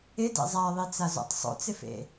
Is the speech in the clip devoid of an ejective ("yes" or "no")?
yes